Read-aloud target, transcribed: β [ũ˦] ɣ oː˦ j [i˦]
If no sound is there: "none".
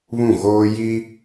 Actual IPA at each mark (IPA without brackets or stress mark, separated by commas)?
ũ˦˨, i˦